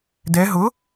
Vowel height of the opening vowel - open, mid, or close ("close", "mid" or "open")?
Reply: mid